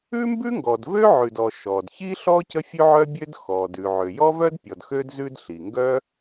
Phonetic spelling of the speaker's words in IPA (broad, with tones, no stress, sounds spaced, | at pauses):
ʉ˥ m b ʉ˥ ŋ ɡ ɔ˩ d v ø˥ ʕ ʉ˩ d ɔ˩ ʃ ɔ˩ d ç i˥ ɬ ɔ˥ c ə˥ fʲ ʉ˥ ʕ œ˥ bʲ ø˥ d x ɔ˩ d ʉ˩ ʕ ø˩ j ɔ˥ v œ˥ d pʲ ɔ˩ d x ø˥ d z ʉ˥ d ɬ i˩ ŋ ɡ œ˥